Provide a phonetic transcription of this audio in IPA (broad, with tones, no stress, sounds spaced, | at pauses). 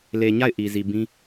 l e˨ ɲ a˦˨ ɪ̯ ʔ i˨ z i˨ b ĩ˦